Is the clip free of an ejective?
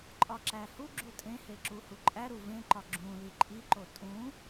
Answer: no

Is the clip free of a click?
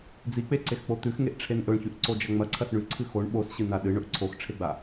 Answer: no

